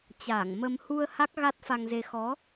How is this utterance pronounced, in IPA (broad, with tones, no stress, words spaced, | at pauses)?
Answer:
t͡ɕaː˧˩ŋmə˧m hu˧ə̯ ha˦˥k̚ɣa˦˥t̚fa˧ŋze˧ xɔ˨˦